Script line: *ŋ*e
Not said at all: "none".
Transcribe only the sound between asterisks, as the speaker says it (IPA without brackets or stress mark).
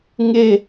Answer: ŋ